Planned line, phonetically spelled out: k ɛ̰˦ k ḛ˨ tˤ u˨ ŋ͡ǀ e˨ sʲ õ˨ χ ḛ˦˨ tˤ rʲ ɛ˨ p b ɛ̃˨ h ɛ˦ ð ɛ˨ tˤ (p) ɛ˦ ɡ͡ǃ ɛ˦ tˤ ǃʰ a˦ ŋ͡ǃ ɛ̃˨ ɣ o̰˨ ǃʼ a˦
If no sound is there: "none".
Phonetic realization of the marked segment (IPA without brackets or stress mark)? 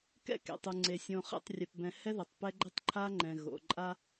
p